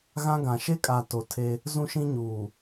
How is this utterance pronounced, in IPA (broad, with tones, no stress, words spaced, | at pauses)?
ɣã˦ɡã˨ ʃe˦kʼa˨ to˨ tʰe˦ | zũ˦ʃĩ˦ɲuː˨